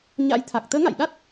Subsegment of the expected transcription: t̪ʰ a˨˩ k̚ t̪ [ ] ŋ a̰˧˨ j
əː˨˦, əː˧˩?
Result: əː˨˦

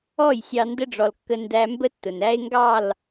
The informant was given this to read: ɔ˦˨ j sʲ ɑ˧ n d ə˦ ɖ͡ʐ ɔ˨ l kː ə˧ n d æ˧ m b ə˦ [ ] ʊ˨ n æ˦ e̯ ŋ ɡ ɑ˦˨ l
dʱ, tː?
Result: tː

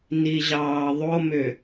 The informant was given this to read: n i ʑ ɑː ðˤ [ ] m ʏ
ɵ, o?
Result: o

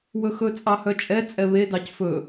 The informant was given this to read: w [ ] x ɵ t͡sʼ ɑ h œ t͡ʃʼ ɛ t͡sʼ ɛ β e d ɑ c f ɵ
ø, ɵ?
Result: ɵ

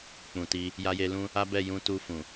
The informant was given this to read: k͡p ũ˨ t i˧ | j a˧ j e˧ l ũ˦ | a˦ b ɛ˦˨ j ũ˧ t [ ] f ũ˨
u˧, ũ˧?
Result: u˧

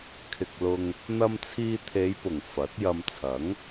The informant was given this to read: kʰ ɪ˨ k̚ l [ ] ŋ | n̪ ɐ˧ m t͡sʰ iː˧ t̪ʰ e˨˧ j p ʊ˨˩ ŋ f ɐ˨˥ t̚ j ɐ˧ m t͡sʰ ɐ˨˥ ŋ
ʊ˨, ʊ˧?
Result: ʊ˨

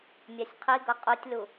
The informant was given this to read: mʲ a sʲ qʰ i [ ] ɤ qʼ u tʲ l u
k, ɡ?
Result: ɡ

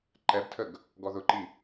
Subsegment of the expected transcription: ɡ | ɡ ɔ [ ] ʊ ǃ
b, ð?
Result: ð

